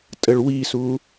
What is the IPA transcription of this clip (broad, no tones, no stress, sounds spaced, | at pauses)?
tʼ ə ɭ w i s u